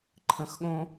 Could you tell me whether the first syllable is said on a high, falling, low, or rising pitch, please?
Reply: low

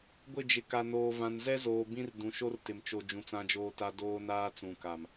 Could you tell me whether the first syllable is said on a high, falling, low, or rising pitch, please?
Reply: falling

